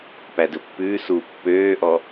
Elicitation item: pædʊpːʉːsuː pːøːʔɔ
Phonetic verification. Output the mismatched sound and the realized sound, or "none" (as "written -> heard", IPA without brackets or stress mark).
ʊ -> ɵ